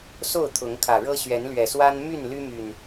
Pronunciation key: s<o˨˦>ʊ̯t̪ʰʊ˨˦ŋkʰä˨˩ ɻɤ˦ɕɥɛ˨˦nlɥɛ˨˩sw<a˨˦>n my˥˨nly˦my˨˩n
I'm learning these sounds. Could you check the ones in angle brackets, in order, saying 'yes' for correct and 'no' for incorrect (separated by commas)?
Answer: no, no